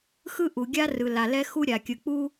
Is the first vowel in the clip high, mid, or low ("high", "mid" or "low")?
high